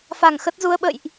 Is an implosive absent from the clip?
no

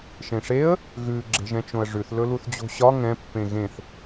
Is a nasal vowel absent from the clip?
no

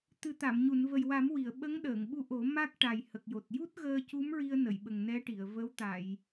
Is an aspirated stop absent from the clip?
yes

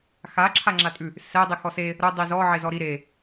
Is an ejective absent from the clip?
no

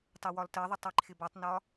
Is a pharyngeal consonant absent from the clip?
yes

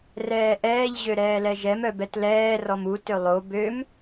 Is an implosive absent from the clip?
yes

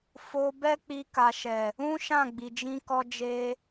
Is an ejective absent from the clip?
yes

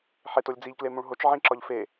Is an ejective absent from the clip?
yes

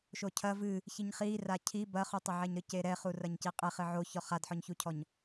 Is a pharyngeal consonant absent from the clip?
no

